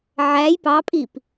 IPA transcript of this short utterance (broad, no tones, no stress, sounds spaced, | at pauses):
ʕ æ j p ɑ pʼ i p